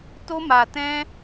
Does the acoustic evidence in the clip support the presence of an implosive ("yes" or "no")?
no